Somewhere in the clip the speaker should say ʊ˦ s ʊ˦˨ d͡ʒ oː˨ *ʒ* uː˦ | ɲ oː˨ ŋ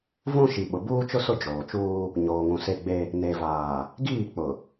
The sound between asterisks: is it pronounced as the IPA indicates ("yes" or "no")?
no